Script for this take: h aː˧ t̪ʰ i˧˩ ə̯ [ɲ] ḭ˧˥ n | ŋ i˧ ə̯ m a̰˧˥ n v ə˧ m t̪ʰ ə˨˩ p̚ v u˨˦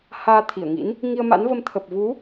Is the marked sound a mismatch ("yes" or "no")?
yes